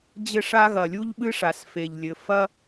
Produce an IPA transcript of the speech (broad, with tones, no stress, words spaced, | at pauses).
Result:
d͡ʑɘ˦ʂa˦ ɣɐ˨˩lʲu˦ʎɓɨ˦ʂa˨˩s fe˨˩ʎlʲɘ˨˩ fɐ˦